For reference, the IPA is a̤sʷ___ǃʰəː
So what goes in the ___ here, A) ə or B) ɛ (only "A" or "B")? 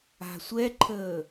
B